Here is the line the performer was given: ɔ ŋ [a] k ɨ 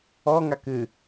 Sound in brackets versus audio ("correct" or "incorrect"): correct